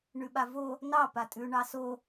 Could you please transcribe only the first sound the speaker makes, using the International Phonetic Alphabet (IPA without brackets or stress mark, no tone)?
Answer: ɳ